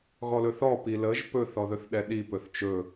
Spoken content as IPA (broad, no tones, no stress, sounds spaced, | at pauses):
ɣ ɔ l ɵ θ ɔ p i l ə ʒ p ɵ θ ɔ ð ɵ θ ɗ ɛ ɗ i p ɵ θ t͡ʃ ɵ